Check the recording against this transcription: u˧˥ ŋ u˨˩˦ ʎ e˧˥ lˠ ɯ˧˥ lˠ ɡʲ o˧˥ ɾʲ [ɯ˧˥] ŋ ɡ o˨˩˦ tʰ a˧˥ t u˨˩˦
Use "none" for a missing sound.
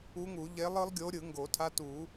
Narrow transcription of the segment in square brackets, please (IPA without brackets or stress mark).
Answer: ɯ˨˩˦